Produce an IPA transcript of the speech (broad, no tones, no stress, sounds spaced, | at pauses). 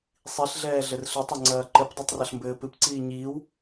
sˤ i ɬ ɮ ɛː ɮ ɘ r ɬ ɘ tˤ ɐ ŋ͡ǀ ɐː ǃ ɘ p dˤ ɛ tˤ r ɐ ɬ m b ɘː p ɨ p ǀ iː ɲ iː w